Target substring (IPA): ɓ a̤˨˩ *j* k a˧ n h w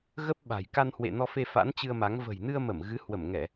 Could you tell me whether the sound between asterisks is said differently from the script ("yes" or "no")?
no